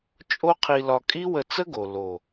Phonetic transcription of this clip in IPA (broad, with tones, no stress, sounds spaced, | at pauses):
t͡ʃʼ o˦ qʰ i˧ l ɒ˧ kʼ i˦ w ə˧ t͡s ə˦ ɡ o˨ l o˨